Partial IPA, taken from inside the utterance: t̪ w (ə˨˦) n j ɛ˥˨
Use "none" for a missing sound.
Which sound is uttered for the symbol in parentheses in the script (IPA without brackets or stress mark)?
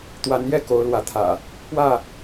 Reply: a˨˦